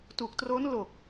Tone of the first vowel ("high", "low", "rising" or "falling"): low